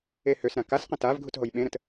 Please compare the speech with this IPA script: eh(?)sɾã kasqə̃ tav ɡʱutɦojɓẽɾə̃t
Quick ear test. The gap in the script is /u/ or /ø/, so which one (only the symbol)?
ø